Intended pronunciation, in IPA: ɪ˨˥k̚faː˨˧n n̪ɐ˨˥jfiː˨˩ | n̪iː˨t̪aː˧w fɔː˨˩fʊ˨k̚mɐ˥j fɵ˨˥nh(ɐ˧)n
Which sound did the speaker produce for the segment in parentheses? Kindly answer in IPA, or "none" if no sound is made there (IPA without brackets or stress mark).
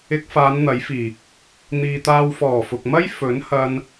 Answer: ɐ˧